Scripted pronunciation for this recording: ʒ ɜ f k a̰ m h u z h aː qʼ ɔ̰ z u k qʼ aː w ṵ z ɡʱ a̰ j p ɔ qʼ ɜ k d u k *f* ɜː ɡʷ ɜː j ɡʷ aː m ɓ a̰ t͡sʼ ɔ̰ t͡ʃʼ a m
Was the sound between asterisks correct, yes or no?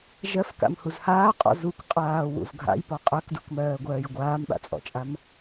no